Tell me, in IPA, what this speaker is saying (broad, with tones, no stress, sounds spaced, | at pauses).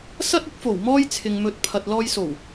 s ɐ˥ t̚ ɪ˨˥ k̚ f o˨˩ w m ɔː˥ j t͡sʰ ɪ˨ ŋ m ɵ˨˥ t̚ pʰ ɐ˨ t̚ l ɔː˧ j s o˨˩ w